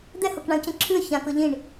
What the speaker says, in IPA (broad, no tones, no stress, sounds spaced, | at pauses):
d̪ ɛ h ɤ k ɳ ã ʊ̯ c ẽ ǁʰ ʉ ə̯ ç ã k ɤ ʎ ĩ ɳ